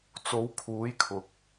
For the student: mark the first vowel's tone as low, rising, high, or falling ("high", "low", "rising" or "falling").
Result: rising